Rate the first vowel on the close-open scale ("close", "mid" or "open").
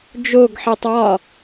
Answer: mid